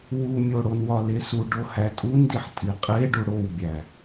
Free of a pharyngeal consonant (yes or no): no